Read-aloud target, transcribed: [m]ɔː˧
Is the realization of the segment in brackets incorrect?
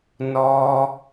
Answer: yes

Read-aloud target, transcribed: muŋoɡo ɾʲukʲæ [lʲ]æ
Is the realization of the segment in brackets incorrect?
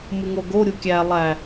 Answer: yes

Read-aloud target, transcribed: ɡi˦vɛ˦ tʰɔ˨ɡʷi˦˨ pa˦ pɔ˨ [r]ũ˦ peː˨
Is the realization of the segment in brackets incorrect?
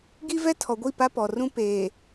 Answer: no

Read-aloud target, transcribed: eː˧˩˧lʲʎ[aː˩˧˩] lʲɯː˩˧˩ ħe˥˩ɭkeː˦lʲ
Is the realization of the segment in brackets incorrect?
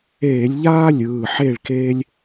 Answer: yes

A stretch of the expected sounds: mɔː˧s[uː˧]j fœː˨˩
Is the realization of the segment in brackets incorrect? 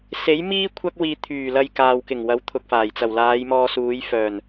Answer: yes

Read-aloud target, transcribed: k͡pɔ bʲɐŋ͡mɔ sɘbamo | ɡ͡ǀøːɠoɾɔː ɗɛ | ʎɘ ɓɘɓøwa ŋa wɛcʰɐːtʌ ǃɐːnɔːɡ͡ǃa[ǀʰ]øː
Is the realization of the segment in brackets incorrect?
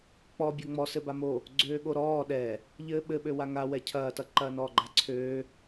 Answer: no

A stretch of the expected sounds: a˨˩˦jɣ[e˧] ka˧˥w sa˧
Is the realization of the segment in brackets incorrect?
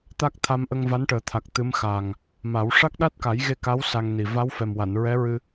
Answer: no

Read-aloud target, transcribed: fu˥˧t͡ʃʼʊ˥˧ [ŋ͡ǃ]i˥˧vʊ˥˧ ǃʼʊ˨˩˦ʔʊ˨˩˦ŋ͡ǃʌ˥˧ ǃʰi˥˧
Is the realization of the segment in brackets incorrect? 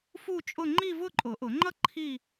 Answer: no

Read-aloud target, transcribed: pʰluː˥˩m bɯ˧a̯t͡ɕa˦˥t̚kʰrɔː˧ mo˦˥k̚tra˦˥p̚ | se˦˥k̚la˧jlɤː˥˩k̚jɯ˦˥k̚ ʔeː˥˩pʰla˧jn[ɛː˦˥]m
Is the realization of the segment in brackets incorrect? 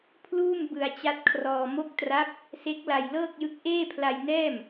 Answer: yes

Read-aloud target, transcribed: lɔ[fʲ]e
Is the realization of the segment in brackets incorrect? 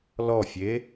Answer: no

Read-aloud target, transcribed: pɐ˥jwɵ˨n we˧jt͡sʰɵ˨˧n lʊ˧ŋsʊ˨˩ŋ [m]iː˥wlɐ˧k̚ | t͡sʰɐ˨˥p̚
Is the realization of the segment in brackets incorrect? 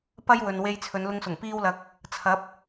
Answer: yes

